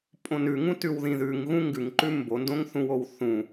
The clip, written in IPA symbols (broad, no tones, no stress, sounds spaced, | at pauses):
pʼ õ n ʉ ŋ ũ t ʉ w ð ĩ ð ʉ ŋ ɣ ũ ŋ ɡ ʉ ŋ ǃ ʉ m b o n d õ ŋ θ ũ w o w θ ũ